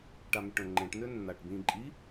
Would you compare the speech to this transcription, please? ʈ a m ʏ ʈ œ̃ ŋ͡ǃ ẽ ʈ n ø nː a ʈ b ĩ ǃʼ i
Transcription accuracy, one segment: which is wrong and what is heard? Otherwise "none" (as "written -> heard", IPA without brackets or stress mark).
none